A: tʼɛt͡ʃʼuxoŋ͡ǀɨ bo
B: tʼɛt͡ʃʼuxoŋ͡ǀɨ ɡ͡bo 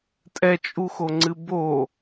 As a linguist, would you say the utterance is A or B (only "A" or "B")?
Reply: A